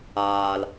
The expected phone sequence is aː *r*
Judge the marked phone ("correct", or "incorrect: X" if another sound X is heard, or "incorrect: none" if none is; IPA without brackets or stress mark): incorrect: l